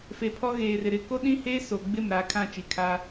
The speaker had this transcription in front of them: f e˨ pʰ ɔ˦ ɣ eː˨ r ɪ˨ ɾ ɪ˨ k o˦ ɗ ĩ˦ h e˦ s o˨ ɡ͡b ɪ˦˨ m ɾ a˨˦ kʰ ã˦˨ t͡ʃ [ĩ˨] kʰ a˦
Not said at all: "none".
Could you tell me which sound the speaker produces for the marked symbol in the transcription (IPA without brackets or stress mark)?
i˨